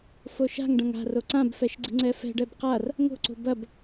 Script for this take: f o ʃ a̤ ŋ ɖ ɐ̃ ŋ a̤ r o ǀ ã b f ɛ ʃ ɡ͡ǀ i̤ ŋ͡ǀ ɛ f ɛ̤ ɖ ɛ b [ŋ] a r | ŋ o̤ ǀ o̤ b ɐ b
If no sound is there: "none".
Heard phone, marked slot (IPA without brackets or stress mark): q